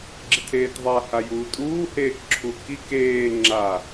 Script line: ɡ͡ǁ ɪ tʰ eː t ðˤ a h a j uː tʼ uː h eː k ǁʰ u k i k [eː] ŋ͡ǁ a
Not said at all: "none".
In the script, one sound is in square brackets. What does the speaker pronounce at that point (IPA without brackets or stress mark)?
eː